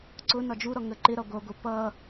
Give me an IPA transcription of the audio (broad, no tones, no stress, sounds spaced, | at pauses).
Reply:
ǀ ʊ n ɒ d͡ʒ u ɾ ɔ ŋ ə ǃ ɪ ɾ ɒ ɡʷ ʌ ɡʷ ə p ʌ